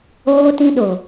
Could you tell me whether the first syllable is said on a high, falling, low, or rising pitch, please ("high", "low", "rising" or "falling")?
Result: high